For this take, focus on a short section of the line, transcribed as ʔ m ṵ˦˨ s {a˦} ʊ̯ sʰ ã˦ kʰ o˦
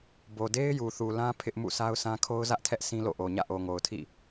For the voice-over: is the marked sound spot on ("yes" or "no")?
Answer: yes